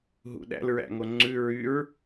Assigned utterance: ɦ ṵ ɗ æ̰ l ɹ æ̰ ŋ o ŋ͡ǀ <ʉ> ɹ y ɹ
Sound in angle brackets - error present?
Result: no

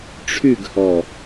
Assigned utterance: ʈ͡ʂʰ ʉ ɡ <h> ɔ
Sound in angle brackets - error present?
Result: no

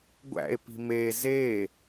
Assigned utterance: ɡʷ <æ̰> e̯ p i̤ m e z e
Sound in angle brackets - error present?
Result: no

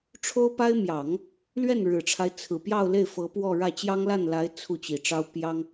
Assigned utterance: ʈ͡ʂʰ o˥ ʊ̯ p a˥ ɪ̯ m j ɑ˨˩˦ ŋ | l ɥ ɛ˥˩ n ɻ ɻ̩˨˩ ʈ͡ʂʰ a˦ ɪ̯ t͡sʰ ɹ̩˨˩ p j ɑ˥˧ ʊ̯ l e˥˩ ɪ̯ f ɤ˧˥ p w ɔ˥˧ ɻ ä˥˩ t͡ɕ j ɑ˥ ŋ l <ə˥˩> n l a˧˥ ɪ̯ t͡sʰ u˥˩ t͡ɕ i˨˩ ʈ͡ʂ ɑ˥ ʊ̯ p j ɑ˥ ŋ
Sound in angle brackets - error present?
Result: yes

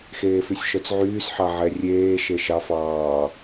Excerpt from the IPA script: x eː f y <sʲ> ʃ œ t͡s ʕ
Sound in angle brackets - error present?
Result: no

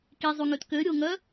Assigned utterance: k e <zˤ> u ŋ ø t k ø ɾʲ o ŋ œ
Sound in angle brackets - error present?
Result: no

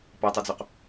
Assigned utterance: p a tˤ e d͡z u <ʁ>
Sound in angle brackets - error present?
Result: yes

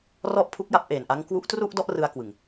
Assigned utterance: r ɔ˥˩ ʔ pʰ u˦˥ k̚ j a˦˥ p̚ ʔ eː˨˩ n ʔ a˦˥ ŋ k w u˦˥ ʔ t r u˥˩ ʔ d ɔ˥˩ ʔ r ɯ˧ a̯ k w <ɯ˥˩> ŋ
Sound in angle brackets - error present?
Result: yes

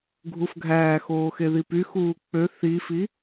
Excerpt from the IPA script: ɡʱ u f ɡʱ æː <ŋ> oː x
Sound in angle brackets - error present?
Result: yes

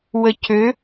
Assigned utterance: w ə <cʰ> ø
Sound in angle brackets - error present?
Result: no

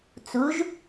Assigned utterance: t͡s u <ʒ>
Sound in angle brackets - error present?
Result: no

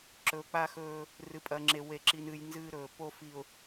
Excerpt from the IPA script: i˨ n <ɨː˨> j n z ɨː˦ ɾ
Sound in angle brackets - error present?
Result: yes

